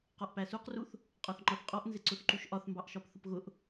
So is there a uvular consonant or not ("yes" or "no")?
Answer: yes